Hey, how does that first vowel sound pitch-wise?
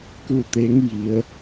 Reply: falling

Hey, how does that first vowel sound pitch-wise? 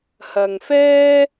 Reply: low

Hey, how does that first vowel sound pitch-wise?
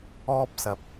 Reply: high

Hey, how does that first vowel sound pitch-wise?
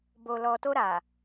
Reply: low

